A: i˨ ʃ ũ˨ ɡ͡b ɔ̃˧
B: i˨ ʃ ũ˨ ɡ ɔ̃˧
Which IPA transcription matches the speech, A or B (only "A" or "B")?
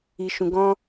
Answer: B